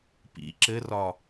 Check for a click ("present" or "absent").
present